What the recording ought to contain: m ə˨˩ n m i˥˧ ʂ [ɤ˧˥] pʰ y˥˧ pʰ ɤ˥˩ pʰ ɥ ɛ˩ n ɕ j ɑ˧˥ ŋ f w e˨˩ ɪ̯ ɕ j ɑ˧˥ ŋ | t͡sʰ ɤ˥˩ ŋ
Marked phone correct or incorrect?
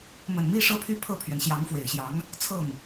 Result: incorrect: ɤ˥˧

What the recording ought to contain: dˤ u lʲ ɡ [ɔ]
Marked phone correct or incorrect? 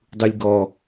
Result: correct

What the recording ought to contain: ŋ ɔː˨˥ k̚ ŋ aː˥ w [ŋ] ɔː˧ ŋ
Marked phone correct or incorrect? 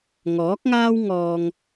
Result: correct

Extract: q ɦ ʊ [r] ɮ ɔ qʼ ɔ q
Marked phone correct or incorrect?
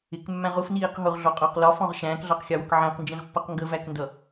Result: incorrect: ʁ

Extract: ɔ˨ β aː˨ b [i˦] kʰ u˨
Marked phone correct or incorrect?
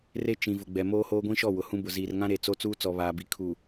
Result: incorrect: i˨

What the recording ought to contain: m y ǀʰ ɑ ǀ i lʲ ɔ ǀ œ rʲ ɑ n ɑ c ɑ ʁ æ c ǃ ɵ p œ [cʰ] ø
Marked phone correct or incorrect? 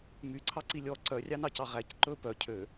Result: correct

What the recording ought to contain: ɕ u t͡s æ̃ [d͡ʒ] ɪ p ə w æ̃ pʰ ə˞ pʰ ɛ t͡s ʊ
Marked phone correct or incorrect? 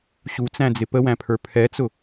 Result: incorrect: d͡z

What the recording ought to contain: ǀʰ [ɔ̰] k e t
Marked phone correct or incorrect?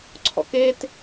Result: correct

